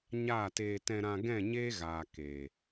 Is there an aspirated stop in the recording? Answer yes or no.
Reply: no